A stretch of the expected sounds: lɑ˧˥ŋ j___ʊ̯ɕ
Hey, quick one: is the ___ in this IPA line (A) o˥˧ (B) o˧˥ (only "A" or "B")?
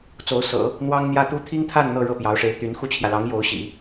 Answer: B